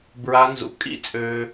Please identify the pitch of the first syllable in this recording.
high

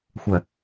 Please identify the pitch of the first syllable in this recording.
low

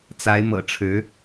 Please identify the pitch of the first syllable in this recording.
rising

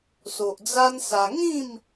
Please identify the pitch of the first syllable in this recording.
low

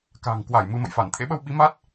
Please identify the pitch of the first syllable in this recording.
low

